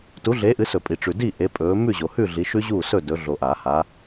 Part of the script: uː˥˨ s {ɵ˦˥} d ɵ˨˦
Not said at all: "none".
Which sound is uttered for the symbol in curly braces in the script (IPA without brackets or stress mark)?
ɵ˥˨